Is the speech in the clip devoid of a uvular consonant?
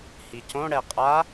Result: no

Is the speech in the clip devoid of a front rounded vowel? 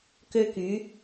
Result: no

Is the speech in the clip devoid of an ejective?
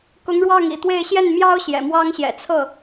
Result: yes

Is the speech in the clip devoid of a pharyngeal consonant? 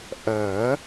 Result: yes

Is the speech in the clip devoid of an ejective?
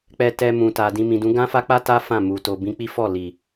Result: yes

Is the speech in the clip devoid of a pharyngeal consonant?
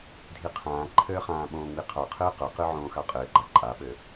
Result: no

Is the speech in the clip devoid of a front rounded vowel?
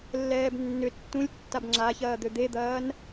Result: no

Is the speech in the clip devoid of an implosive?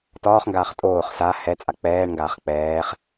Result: yes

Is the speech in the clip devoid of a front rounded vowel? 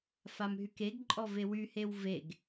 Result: no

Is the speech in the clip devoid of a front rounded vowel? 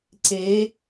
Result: yes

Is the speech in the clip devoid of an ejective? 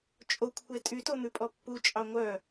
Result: no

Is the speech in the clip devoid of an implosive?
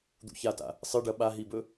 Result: no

